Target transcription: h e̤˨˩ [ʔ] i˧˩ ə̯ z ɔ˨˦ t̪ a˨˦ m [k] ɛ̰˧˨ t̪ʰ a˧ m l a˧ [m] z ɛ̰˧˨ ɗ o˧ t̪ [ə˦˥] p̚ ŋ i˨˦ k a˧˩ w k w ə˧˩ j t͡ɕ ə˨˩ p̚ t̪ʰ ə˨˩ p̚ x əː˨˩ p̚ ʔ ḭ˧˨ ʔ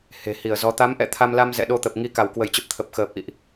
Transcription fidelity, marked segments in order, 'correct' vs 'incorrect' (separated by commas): incorrect, incorrect, correct, incorrect